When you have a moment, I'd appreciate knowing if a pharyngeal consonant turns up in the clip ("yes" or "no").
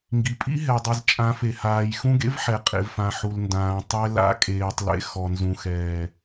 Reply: yes